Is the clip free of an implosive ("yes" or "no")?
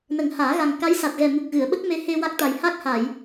no